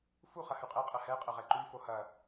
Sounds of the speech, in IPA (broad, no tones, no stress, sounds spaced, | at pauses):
f u χ ɐ h ʉ qʼ ɛ qʼ ɐ h ɛ qʼ ɐ ʁ ɛ ǃ ʉ f o h ɐ